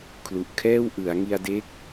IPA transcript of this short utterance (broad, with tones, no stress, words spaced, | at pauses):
kʰlu˨˩ʔ kʰɛː˥˩wʔɯ˩˦a̯ ŋi˧a̯de˦˥k̚